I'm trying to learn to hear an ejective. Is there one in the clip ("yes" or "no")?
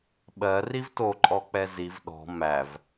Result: yes